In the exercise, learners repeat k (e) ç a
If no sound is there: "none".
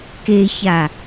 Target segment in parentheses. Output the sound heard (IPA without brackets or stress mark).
e